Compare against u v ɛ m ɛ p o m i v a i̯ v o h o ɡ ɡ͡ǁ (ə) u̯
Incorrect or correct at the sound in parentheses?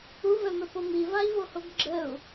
correct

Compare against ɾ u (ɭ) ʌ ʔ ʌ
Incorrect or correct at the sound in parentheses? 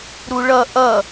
correct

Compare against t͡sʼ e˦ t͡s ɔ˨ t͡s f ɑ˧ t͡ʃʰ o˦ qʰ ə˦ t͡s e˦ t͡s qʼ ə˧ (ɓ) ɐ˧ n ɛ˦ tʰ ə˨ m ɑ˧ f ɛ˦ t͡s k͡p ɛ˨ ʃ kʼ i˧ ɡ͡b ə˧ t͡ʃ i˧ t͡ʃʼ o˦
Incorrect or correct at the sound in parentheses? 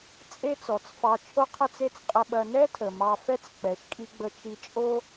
correct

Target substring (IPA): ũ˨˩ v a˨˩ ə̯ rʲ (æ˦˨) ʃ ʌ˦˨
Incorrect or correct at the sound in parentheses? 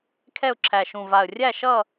correct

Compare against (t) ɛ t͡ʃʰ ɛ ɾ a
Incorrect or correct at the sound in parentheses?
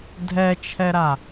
incorrect: dʱ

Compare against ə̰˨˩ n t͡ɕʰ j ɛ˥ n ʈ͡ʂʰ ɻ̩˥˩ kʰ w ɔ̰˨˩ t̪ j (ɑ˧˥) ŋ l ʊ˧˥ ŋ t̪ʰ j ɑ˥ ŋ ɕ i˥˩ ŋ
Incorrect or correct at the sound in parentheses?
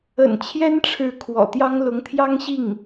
incorrect: ɑ˥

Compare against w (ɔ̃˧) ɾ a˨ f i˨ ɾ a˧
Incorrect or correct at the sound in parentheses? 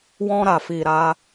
correct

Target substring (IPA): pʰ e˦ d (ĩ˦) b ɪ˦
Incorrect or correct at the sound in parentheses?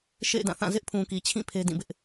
incorrect: ĩ˦˨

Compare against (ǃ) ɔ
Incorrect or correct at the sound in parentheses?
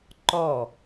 correct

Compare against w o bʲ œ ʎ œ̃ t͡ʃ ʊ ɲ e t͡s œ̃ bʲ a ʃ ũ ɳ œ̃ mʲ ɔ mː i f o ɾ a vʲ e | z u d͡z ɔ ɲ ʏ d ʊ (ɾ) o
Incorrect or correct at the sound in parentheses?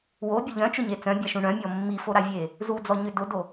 incorrect: d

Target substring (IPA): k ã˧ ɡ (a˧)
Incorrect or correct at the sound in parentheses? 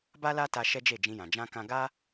incorrect: a˦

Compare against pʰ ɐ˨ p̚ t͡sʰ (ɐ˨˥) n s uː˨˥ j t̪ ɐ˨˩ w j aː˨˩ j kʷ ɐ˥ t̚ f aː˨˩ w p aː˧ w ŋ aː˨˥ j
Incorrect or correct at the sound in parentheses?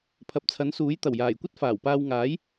correct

